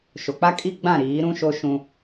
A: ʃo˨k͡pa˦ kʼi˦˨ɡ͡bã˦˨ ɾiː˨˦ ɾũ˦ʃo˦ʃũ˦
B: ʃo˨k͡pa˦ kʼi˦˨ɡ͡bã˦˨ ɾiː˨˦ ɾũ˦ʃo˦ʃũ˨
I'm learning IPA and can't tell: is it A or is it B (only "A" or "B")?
A